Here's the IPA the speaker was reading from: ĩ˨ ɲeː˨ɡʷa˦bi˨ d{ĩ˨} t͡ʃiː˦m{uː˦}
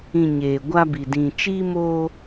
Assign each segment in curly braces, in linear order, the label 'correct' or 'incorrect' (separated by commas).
correct, incorrect